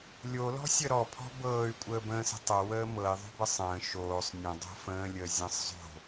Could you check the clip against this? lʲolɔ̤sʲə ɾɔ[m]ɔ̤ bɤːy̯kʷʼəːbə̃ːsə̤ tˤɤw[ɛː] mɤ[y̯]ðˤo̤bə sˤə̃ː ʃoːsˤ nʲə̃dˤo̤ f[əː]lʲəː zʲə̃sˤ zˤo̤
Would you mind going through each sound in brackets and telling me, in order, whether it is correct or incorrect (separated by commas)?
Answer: incorrect, incorrect, incorrect, incorrect